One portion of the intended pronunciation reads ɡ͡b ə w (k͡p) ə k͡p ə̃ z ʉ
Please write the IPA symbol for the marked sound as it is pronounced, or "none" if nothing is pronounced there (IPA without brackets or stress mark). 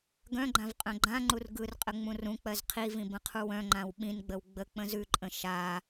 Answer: ɡ͡b